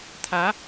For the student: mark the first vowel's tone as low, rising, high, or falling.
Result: rising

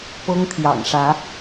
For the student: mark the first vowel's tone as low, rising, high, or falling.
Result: high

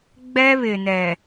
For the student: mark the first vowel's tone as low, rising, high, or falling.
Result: high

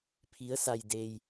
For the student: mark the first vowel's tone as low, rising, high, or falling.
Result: rising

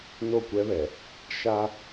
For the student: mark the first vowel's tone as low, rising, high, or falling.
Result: falling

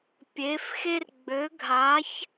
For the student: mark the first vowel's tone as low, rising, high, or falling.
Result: rising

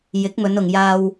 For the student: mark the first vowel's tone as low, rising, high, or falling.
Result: rising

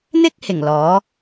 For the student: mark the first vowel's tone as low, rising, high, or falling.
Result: high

